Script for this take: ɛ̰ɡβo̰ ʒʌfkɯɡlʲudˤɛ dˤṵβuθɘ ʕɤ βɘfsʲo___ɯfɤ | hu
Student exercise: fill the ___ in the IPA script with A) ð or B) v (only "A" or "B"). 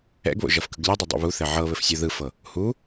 A